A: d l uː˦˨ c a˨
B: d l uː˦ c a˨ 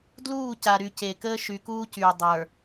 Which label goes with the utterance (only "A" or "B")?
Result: A